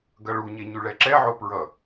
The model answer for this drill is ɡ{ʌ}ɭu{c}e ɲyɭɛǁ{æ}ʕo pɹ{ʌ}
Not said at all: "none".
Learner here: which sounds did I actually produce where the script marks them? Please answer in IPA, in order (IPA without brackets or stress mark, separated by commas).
ʌ, ɲ, ɛ, ʌ